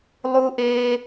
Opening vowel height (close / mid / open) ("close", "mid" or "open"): close